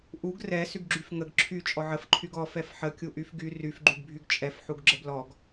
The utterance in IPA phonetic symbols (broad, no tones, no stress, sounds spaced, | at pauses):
ʔ u ɡ r ɛ s y ɡ ɡ͡ǁ y f ŋ ə ɡ ǁʰ y t͡ʃʼ ɔ ʕ ə f ǃʰ y ɡ ɔ f ɛ f ħ ə kʲ u ʔ y f ɡ y r y f ɡ͡ǃ y ɡ bʱ y ɡ t͡ʃʼ ɛ f ħ u ɡ ɡ͡ǁ ə b l ɔ ɡ